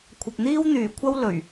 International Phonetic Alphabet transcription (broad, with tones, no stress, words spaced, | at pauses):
kʷʰɐ˨p̚n̪iː˥wn̪yː˨˩kʷʰɐ˥w lɵ˨˩ɥ